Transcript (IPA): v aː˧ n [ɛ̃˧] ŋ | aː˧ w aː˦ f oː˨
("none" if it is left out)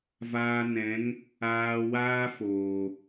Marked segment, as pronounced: ɛ̃˨˦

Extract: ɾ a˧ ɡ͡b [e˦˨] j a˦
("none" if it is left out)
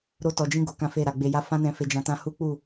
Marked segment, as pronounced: e˧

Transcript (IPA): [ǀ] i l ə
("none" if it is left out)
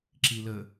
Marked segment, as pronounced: ǁ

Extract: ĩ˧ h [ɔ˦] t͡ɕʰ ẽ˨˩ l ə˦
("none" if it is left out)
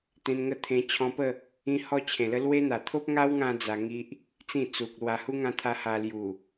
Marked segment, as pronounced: ɔ˦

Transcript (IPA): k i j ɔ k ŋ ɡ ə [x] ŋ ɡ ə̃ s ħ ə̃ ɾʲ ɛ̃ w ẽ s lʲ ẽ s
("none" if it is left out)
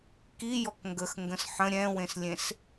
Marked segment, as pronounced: x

